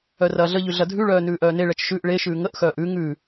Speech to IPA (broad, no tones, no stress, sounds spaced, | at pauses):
œ r ɐː ɮ ə ʎ ʉ ɮ ɐ dʱ ʉ ɭ œː n ʉː ʔ œː n e ɭ ɛ t͡ʃ ʃ ʉ ʔ ɭ e ʃ ʉː ŋ ə ʔ x œː ʔ ʉ ŋ ʉ